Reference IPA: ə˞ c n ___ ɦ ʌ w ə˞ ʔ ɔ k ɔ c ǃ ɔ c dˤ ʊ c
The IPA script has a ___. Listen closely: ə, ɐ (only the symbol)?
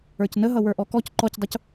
ə